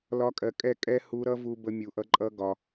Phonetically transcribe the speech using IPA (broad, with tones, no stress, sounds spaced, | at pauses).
l ɒ˦ kʼ ɜ˧ kʼ ɛ˦˨ kʼ ɛ˦ h u˧ ɾ ʌ˦ v u˧ b ə˧ mʲ u˨ ʔ ʌ˦ ǃʼ ʌ˦ ɡ ɒ˧